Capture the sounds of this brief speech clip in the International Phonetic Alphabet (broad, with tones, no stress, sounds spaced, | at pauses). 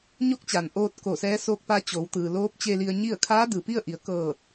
ɲ o˧˥ k̚ t͡ɕ aː˩ n ʔ oː˧ t̚ k o˧˩ s ɛː˧˥ s oː˧˥ k̚ p a˧˥ t͡ɕ o˩˧ w t̪ ɯː˩ l oː˧˥ p̚ t͡ɕ e˧ l i˧ ə̯ ɲ i˥˨ ə̯ kʰ aː˧˥ d ɯː˩ p i˥˨ ə̯ ʔ i˩˧ ə̯ k ɤː˧˩ t̚